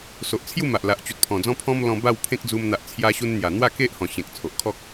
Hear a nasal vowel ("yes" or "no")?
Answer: yes